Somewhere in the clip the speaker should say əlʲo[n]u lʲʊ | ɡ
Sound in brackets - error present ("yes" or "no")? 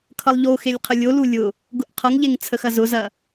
yes